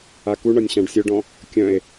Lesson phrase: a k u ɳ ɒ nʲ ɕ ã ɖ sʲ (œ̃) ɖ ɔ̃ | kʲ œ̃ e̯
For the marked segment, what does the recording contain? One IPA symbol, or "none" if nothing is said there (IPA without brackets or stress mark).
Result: œ